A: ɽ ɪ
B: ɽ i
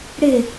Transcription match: A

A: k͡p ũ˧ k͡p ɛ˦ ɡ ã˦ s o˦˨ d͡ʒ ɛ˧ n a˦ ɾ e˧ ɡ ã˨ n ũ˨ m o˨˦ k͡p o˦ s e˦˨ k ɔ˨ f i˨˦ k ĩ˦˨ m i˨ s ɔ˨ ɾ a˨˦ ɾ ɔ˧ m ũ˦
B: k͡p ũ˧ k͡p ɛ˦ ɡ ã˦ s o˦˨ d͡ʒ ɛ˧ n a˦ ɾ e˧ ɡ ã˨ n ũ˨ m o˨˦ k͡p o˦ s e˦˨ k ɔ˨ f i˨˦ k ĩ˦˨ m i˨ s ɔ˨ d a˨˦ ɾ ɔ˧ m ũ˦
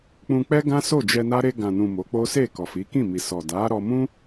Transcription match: B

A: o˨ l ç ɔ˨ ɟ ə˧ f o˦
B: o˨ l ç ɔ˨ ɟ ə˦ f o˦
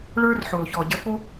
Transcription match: A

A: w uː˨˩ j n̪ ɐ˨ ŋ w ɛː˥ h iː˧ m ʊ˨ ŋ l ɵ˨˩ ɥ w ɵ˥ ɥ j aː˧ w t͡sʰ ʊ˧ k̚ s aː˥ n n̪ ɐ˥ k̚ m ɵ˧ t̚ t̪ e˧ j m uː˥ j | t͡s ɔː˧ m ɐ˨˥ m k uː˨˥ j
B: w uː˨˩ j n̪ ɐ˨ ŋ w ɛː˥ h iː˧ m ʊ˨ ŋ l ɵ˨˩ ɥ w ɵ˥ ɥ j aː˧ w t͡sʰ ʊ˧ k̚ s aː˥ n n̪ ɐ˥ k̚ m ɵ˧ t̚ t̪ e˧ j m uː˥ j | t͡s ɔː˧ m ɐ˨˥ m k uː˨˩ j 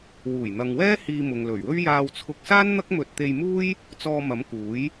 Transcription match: A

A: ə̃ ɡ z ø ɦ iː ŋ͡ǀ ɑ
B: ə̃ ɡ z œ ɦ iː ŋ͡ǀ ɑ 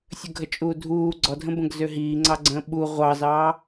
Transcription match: A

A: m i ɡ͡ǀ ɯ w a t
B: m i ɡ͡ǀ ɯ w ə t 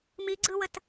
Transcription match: B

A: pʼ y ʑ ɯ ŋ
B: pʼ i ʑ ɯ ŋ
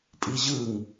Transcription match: B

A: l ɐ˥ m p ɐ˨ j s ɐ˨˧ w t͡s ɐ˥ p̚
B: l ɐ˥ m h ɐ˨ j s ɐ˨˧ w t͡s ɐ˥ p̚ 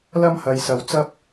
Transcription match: B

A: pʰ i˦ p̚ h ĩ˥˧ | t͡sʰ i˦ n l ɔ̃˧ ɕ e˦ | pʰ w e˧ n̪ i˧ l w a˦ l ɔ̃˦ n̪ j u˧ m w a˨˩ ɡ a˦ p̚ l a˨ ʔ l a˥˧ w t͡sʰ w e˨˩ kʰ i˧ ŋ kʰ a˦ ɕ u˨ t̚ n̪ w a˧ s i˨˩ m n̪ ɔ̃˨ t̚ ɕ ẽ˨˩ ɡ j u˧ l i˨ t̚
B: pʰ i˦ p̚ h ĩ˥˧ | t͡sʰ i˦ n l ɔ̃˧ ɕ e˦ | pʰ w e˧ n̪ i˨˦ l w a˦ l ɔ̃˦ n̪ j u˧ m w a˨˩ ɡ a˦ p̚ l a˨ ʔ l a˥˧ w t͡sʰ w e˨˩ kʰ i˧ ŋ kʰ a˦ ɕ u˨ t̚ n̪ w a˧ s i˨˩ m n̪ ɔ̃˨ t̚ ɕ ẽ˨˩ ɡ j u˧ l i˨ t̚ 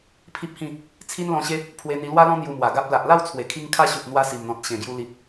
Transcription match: A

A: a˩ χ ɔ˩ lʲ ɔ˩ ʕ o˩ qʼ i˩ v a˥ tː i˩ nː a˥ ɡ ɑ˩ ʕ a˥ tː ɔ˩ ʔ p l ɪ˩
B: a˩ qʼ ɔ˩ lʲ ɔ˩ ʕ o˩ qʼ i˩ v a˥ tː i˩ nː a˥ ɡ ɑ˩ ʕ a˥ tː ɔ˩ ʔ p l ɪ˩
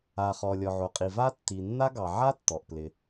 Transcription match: A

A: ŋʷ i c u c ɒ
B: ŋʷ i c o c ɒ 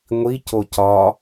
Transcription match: B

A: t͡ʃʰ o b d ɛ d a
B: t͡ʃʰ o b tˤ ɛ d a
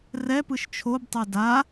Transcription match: B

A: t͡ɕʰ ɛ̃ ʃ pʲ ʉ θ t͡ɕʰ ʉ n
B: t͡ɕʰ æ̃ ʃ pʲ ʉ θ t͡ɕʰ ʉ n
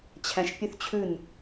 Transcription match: B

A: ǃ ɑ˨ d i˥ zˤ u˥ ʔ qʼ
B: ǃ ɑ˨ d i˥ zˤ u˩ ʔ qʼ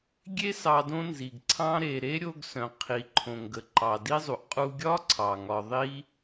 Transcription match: B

